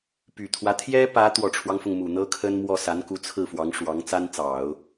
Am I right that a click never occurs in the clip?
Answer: yes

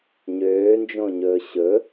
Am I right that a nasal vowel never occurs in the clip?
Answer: no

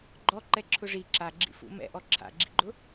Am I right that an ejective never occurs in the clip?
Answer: yes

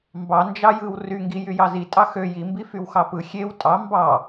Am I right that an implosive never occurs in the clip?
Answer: yes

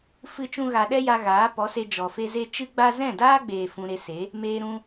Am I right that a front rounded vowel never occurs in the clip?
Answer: yes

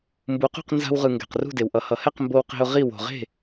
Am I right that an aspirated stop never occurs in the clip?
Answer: yes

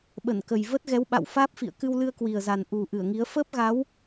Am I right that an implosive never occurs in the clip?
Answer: no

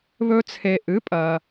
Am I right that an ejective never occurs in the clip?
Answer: no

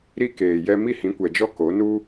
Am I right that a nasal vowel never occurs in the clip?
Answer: no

